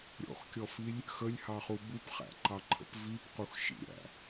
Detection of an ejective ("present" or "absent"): absent